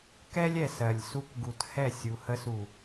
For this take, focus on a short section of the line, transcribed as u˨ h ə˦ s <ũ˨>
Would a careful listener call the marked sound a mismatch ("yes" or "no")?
yes